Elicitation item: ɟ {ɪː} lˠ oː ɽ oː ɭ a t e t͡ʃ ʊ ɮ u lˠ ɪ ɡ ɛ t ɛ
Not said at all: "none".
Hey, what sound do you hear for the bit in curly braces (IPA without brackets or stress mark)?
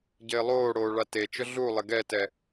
ɪː